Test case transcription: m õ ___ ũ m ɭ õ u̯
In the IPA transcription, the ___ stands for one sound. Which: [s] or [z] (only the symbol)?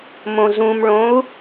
z